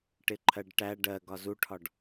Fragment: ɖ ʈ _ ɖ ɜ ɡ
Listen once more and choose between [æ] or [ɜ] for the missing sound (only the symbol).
æ